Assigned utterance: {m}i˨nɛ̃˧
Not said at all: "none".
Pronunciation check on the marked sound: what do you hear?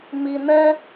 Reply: m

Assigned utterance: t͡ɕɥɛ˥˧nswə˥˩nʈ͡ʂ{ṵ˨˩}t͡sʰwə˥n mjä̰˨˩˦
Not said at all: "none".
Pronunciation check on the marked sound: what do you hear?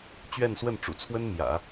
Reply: ṵ˨˩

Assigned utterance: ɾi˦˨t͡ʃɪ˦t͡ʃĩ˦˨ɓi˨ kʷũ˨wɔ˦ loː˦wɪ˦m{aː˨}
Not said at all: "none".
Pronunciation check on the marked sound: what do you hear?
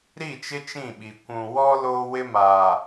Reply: aː˨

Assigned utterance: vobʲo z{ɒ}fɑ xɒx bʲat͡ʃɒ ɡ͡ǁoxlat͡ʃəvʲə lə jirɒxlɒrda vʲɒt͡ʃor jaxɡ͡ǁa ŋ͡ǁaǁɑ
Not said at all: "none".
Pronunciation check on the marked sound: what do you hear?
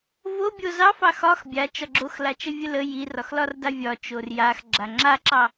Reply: ɑ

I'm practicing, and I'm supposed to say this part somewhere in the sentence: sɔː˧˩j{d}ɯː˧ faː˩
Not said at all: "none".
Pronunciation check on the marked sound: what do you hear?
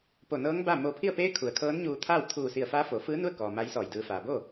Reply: d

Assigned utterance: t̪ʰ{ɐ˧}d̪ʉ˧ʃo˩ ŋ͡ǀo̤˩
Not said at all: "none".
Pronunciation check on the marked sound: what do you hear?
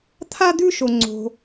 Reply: a˧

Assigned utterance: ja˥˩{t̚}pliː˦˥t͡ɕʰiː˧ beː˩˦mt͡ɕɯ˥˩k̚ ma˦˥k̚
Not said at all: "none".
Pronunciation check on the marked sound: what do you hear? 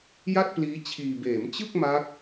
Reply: t̚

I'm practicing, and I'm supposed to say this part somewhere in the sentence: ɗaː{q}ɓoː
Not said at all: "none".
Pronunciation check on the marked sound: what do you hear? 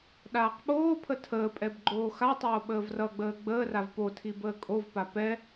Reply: q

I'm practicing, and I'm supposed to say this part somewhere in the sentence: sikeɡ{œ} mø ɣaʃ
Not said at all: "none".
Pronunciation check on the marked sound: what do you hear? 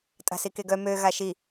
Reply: œ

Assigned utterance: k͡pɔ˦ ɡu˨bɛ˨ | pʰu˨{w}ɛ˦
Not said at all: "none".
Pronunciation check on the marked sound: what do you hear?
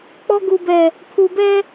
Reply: b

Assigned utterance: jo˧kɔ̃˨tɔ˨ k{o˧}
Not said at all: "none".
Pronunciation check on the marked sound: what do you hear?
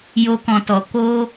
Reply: o˧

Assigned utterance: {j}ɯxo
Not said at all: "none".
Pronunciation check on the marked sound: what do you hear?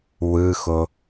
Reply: w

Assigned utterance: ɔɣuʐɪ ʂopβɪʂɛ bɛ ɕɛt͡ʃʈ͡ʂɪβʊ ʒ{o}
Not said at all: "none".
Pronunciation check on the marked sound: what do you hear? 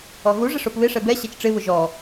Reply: ɔ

